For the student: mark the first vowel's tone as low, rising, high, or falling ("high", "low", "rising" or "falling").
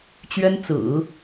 high